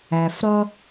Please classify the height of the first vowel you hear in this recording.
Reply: low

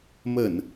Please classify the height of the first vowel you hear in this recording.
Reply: mid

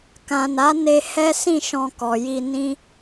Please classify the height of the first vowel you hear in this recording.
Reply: low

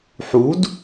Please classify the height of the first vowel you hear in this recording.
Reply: high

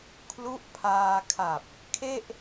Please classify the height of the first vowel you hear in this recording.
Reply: high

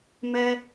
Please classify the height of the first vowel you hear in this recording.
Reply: mid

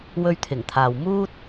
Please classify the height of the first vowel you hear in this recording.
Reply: mid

